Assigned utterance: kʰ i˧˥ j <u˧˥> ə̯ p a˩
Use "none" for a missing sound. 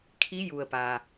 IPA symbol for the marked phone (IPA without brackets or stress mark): u˩